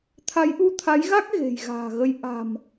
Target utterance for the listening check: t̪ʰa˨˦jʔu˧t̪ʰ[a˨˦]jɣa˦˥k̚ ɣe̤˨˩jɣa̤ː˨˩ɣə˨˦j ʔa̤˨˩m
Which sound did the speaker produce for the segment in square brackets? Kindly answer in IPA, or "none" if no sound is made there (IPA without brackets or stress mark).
a˨˦